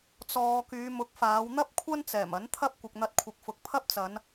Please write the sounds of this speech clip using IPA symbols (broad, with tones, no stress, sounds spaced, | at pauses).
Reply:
t͡s ɔː˨ k yː˨˧ m ʊ˨˥ k̚ f aː˨˧ w n̪ ɐ˥ p̚ kʷʰ ɐ˥ n t͡s ɛː˨˩ m ɐ˨˥ n t̪ʰ ɐ˥ p̚ kʷ ɪ˨ k̚ n̪ ɐ˧ t̚ kʷʰ ɪ˨ k̚ f ʊ˨ k̚ pʰ ɐ˥ p̚ t͡s ɐ˨˧ n